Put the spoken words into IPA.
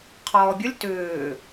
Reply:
qʰ ɔː bʲ ʌ lʲ t ʏː

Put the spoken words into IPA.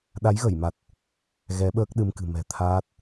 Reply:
ɗ a˨˦ j ɣ ə˧˩ j m a˨˩ t̚ | ɣ ɛ˨˦ ɓ əː˦˥ k̚ ɗ ɨ˧ m k ɨ̤˨˩ m ɛ̤˨˩ t̪ʰ aː˦˥ t̚

